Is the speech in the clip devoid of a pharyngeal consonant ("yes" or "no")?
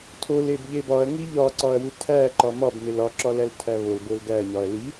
yes